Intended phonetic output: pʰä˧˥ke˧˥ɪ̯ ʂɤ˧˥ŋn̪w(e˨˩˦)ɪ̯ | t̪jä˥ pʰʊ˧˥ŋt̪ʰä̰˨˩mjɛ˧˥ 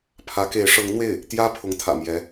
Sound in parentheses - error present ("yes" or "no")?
yes